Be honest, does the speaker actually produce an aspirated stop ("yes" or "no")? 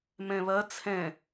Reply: yes